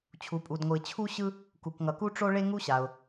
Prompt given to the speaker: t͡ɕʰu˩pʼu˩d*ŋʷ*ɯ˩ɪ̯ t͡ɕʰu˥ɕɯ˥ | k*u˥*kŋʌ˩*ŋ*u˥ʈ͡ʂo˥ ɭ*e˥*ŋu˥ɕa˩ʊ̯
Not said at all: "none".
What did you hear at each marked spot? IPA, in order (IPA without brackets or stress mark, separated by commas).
ŋʷ, u˩, k, e˥